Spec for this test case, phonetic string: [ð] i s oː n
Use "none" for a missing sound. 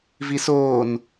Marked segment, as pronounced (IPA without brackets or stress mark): v